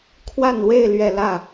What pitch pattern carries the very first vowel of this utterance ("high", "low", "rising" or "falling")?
falling